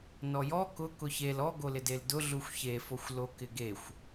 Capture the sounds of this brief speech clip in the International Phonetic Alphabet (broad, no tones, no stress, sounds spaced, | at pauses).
n ɔ j ɔ k ʊ k ʊ ç e l ɔ ɡ o l ɪ d e l d ʊ ɮ u xʷ ç e f o xʷ l o k ɪ ɡ e xʷ